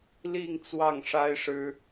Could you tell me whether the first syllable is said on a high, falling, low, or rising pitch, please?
falling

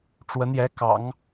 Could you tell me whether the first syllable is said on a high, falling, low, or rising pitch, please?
rising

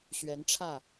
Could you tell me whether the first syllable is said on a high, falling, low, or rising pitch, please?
rising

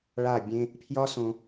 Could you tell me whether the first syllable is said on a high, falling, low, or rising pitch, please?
falling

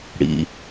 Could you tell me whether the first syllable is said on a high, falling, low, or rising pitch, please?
low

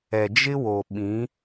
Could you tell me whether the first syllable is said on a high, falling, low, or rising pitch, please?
low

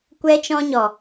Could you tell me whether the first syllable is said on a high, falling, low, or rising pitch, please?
high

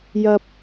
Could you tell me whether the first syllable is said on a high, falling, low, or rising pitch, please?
high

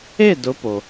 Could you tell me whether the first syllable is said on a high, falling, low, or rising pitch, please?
falling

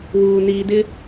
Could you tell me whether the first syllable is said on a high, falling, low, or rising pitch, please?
low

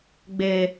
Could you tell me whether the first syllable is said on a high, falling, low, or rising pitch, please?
low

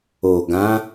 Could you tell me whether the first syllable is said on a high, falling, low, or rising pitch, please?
low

